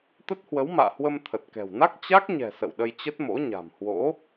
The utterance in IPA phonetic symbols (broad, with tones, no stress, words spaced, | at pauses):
t̪ə˦˥t̚hwə˨˦wma̰ː˧˨hwə˧m t̪ʰə˨˩t̚kɛ̤˨˩wna˦˥k̚ t͡ɕa˦˥k̚ɲɛ̤˨˩ sə̰˧˨wɗə˧jt͡ɕə˦˥t̚mo̰˧˥ ɲa̤˨˩mhwo̰˧˥